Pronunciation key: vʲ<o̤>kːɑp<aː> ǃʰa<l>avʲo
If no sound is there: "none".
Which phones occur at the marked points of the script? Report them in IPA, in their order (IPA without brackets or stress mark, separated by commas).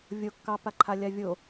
o, a, lʲ